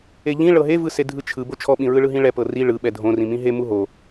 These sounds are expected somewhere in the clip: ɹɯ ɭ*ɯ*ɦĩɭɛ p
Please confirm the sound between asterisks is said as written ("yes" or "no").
yes